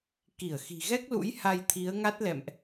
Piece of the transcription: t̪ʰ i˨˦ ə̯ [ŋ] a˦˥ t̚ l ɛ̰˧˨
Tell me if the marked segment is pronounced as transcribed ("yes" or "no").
yes